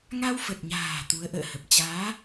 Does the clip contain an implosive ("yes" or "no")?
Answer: no